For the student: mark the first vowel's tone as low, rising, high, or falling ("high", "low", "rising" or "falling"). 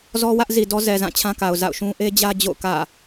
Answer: high